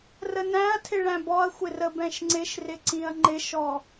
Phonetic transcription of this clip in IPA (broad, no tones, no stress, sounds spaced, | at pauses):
r ə n æ̃ ɐ̯ tʰ ɪ ɭ æ̃ b ɔ ɐ̯ xʷ ɪ r ə b ɛ̃ ʃ ŋ͡ǀ ɪ ʃ r ɪ ǀ ĩ ɐ̯ ŋ͡ǃ ɪ ʃ ɔ